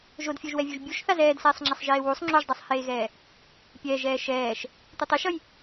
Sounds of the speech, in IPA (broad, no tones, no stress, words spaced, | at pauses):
ʒodfʲoʒwɛvʲuʒ bʲuʃθaz ɛːdsɛːsˤŋ͡ǁasˤ ʒeːwusˤ ŋ͡ǁoʒdˤɛsˤheːɣɛː | pʲɛːʒɛː ʃɛːʃ | tʷɯtˤiʃʌj